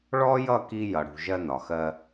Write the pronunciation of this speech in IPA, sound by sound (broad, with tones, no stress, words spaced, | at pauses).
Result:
ɭɔ˦jʌ˦˨ki˧ jʌ˨ɽṳ˨ ʒɜ˧nɒ˨xɜ˧